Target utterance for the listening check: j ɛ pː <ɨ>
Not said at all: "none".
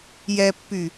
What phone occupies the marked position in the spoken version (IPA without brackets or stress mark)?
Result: y